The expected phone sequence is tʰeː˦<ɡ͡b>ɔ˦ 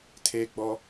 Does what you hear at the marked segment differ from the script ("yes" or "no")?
no